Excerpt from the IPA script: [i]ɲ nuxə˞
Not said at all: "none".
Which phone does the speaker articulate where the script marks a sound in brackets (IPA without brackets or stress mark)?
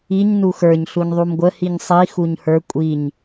i